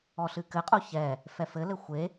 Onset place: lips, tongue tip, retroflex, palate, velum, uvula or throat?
tongue tip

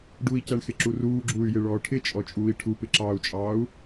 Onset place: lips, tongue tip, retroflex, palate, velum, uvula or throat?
retroflex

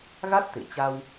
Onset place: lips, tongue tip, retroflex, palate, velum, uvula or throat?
velum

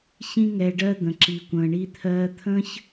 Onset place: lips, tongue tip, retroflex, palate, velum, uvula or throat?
palate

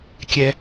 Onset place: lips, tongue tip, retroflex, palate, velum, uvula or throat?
velum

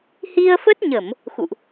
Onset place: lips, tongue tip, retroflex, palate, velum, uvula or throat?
throat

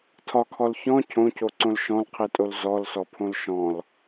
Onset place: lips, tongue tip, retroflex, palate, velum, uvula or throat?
tongue tip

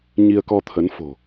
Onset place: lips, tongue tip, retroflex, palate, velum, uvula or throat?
palate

